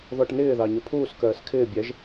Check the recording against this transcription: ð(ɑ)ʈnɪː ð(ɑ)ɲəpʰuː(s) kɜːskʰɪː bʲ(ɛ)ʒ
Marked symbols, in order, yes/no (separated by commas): no, yes, yes, yes